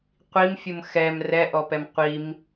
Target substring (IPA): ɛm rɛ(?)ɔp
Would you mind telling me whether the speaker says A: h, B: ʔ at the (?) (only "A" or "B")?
B